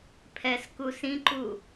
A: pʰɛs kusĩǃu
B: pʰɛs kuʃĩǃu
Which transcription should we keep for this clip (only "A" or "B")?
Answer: A